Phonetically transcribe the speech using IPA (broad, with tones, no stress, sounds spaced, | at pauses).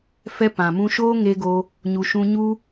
f ɛ˧ p ã˨ m ũ˧ ʃ oː˦ ŋ e˧ ɡ o˧ | ɲ u˨ ʃ ũ˧ ɲ u˧